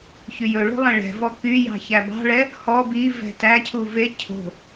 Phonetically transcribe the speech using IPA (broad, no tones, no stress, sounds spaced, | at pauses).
ç y j ɵ ɭ o̤ lˠ ɛ̃ ɭ ɛ̤ v ɔ k y j ɑ̤ ç æ b ɑ̤ ɭ ɛ | h ɔ b i v ɛ̤ t æ cʰ u v e cʰ o̤